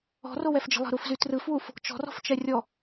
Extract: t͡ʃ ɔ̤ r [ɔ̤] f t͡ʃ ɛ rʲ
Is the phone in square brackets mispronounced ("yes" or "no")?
no